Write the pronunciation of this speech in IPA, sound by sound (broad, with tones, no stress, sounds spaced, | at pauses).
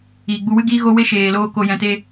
iː˨ ɡ͡b u˧ w ɨ˦ ɡ iː˦ ɣ o˦ w e˦ ʃ eː˨ l oː˧ k o˧ j ɛ̃˧ t e˦